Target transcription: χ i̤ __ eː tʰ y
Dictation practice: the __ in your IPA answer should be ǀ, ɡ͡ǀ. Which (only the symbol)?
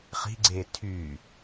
ɡ͡ǀ